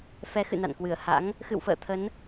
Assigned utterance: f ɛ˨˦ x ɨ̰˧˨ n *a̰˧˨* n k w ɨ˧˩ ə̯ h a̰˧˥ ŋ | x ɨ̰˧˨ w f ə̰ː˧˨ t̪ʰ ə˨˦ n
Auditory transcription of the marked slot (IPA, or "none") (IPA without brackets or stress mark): a̰˧˨